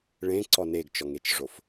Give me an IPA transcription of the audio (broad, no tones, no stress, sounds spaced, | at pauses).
ɭ ẽ ǀ ɔ n e ɡ t͡ʃ ɔ ŋ e t͡ʃ ʐ o f